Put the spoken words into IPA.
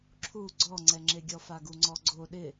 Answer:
ǁʰu ɡ͡ǀɔŋ͡ǀɛŋ͡ǁeɡʲɔ faɡuŋ͡ǀɔɡ͡ǀo ɗɪ

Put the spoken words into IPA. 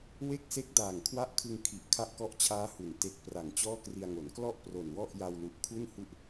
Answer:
we˥˩k̚se˦˥k̚ daː˨˩ŋkʰwa˦˥ʔkʰɯ˧ŋ kʰi˨˩ʔ kʰa˥˩ʔkɔ˦˥ʔt͡ɕʰaː˦˥hu˩˦n te˨˩k̚pra˩˦ŋ t͡ɕɔː˥˩kri˧a̯ŋo˩˦n klɔ˥˩ʔ pro˨˩nwɔ˥˩ʔja˧wlu˨˩ʔ kʰu˥˩nhu˦˥ʔ

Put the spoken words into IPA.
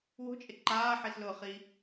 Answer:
wo̤t͡ʃʼe ǃaːħislʊːχiː

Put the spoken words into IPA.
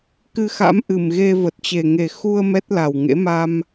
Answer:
kɨ˧xa̰˧˥m ʔɨ˨˩mɣe˧ və˨˩t̚t͡ɕe˨˩ŋe˨˩ xu˧ə̯ mɛ˦˥t̚la˨˩wŋḛ˧˥ ma˧m

